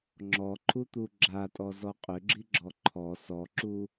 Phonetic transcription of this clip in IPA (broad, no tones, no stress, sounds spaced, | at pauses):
ŋ͡ǁ ɔ ǃʰ u t̪ u ɡ͡ǁ a tʼ ɔ z ɔ qʼ ʏ ɡ͡ǁ i ɡ͡ǁ ɔ ǃʰ ɔ s ɔ ǁ u